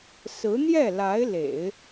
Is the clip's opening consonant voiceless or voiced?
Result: voiceless